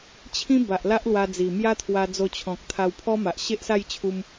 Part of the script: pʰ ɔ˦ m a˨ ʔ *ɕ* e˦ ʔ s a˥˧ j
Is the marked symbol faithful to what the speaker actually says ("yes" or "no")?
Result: yes